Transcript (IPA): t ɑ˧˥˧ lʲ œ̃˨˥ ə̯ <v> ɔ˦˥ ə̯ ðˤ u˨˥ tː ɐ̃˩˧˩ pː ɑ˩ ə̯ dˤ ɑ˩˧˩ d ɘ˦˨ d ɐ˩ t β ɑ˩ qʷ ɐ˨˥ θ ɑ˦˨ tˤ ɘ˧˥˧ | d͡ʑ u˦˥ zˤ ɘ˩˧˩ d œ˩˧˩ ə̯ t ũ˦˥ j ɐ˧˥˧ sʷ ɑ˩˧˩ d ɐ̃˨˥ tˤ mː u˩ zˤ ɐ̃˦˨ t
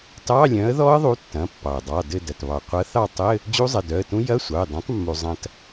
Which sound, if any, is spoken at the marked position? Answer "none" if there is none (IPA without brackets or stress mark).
ð